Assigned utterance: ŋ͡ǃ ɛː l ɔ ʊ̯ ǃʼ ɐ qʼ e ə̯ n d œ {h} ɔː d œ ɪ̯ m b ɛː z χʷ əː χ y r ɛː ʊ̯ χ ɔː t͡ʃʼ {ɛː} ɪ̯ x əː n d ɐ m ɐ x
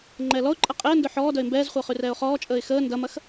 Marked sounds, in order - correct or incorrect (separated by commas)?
incorrect, incorrect